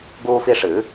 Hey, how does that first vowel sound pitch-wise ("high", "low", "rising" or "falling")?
high